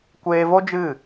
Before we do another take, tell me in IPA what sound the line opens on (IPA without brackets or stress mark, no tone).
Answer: kʷ